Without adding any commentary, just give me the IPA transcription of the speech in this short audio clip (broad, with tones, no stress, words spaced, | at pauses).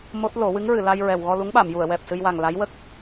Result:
mo˦˥t̚ lo˨˩˦wɨ˧˥ŋ ɹɨ˨˩˨la˧j ɹɛ˨˩w ɣɔ˧lu˧˥ŋɓa˨˩˨m ju˨˩˨ə̯wɛ˨˩p̚sɨ˧jwa˨˩ŋ la˧˥j wə˦˥k̚